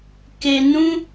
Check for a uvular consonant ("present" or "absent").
absent